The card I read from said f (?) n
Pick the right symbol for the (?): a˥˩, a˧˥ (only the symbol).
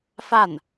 a˥˩